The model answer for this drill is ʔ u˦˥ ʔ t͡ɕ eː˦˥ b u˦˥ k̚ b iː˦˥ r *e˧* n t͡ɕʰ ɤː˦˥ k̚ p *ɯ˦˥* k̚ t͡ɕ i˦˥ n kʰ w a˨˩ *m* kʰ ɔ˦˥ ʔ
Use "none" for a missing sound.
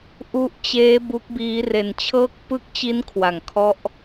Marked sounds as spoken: e˧, ɯ˦˥, ŋ

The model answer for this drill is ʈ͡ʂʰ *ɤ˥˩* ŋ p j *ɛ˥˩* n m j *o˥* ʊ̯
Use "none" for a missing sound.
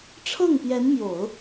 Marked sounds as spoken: ɤ˥˩, ɛ˧˥, o˨˩˦

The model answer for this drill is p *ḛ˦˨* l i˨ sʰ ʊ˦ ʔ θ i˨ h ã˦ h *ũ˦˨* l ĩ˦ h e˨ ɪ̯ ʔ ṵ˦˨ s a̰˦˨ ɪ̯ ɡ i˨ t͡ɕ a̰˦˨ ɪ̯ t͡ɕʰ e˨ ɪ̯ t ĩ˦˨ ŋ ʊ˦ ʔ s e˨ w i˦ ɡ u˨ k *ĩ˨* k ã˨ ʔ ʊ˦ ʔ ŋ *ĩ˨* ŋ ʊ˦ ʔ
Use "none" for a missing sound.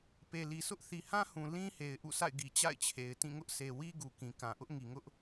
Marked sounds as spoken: e˨, ũ˨, ĩ˨, i˨

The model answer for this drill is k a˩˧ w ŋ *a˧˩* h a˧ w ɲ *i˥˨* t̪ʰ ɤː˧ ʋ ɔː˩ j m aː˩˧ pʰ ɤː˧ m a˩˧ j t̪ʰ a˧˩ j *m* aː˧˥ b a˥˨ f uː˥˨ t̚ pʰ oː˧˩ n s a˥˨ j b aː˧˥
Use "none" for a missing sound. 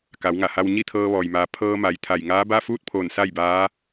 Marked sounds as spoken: a˧˩, i˥˨, ŋ

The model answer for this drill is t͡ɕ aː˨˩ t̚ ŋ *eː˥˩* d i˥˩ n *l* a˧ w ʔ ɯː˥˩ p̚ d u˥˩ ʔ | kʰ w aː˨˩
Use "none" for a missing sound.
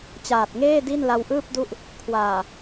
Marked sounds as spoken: eː˥˩, l

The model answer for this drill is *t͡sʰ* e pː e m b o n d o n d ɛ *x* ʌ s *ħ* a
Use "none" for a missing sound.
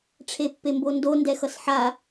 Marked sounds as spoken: ʈ͡ʂʰ, x, ħ

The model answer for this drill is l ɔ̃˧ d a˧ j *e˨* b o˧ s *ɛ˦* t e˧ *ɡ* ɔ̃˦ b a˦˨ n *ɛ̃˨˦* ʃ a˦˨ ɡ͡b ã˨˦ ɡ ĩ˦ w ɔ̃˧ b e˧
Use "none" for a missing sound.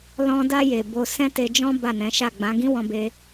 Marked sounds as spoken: e˨, ɛ̃˦, d͡ʒ, ɛ̃˨˦

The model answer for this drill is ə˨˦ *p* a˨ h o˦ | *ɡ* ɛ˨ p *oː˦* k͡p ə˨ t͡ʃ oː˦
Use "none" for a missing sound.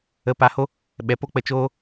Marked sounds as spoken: p, ɓ, o˦

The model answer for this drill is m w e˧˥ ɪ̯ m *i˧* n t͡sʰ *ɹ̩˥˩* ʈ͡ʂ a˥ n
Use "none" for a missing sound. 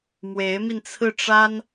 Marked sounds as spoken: i˧, ɹ̩˥˩

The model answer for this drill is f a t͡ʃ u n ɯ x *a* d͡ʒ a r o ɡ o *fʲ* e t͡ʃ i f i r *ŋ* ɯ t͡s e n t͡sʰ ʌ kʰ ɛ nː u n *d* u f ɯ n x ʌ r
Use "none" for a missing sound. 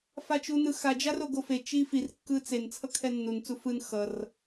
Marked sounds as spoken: a, f, kː, t͡s

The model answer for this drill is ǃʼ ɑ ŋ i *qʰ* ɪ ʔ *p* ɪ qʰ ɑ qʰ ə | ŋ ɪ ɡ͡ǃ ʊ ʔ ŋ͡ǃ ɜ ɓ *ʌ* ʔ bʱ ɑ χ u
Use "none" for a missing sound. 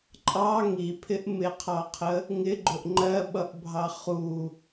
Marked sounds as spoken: pʰ, m, ʌ

